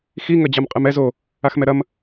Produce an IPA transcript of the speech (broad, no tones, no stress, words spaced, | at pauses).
xi ŋɐd͡ʑamqʼɨmɛz o | axmɛɾɐm